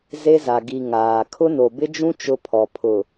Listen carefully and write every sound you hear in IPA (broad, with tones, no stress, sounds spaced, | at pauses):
z e˦ z a˨ ɡ i˨ ŋ aː˨ kʰ ʊ˦ n o˨ b ɪ˦ d͡ʒ ũ˦ t͡ʃ ʊ˦ pʰ ɔ˨ pʰ ʊ˨